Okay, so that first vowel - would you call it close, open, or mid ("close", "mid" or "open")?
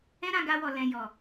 mid